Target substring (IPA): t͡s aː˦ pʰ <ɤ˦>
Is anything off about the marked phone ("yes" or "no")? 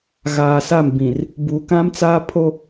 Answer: yes